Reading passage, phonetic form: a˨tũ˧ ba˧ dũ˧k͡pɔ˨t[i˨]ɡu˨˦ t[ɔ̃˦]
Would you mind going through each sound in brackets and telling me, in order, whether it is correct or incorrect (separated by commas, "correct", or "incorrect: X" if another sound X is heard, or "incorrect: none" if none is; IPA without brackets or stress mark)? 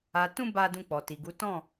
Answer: correct, incorrect: ɔ̃˦˨